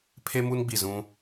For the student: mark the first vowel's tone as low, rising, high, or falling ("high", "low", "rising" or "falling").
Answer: high